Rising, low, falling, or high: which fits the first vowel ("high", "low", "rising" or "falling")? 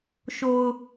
low